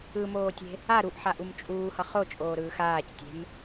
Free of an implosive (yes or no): yes